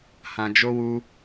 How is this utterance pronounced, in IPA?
hã˧d͡ʒo˦wu˦

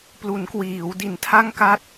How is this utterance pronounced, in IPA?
plu˩˦nkwiː˩˦w di˨˩ntʰa˥˩ŋka˥˩t̚

